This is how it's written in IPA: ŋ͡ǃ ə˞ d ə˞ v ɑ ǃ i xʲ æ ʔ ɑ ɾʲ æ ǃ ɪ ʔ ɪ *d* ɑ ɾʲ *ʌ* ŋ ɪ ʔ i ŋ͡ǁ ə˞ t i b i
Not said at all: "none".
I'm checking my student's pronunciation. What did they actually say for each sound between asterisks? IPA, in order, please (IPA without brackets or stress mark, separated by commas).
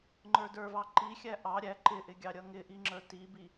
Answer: ɡʲ, ʌ